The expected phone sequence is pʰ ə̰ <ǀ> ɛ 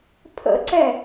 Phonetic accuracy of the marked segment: correct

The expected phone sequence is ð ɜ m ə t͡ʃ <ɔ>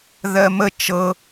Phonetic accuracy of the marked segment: incorrect: ɤ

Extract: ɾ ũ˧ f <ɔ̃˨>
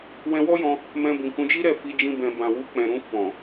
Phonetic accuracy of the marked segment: correct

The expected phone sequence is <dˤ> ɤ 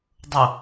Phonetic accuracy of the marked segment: correct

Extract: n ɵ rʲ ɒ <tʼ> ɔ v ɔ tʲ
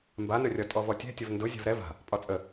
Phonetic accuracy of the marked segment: correct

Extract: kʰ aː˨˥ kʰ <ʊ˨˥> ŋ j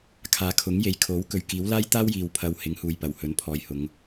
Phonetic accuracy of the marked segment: correct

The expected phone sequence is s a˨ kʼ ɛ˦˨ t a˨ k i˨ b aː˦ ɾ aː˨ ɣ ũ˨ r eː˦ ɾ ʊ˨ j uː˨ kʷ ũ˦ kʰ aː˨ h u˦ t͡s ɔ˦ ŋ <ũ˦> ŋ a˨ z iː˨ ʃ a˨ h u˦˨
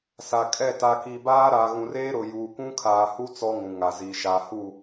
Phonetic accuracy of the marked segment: incorrect: ũ˨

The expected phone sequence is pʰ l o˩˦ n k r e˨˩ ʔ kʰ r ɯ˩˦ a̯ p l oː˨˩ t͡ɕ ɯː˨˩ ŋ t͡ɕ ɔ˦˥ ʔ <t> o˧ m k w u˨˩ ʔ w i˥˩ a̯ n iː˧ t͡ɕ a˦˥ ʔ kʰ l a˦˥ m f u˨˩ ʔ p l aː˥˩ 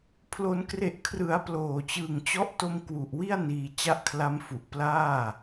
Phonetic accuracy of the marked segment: correct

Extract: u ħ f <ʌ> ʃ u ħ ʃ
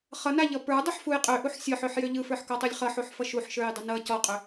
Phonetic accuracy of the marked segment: correct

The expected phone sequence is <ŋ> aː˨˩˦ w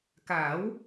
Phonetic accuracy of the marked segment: incorrect: k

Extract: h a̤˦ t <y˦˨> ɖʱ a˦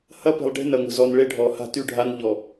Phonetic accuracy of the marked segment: correct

